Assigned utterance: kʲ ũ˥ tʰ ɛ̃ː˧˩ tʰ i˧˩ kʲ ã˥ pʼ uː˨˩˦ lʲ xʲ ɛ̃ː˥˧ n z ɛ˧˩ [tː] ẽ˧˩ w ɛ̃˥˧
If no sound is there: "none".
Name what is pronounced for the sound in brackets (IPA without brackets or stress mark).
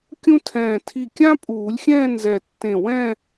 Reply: tː